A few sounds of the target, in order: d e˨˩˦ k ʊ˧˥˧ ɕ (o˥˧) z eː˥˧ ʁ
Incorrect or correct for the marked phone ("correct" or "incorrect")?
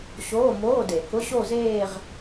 correct